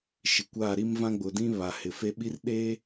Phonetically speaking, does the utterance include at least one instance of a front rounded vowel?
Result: no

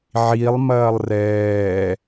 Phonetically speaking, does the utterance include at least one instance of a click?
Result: no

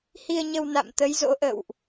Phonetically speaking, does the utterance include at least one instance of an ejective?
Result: no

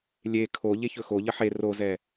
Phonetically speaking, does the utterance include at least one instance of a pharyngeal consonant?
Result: yes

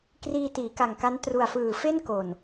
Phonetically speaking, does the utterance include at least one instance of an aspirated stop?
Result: no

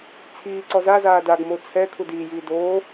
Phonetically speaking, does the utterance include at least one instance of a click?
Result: yes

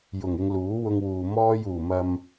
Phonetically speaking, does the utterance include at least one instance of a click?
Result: no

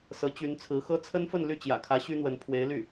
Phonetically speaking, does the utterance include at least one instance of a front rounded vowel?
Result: yes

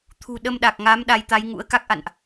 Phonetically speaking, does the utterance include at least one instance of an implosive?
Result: yes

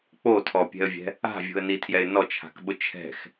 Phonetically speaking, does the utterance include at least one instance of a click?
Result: no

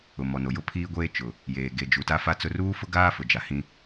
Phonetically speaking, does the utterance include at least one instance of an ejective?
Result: no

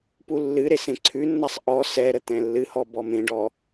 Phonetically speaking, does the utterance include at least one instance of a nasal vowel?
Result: yes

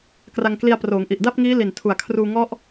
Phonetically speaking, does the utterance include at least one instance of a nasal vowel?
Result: no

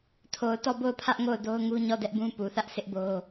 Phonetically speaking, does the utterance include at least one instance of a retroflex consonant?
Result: no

